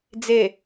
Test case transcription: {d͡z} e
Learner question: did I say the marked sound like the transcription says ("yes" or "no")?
yes